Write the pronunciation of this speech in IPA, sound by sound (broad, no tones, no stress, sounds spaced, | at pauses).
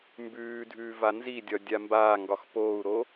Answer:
m b ʉː dʱ ʉː v a n z i dʲ ɒ dʲ a m b aː ŋ ɡ ɒ x p oː u̯ ɾ o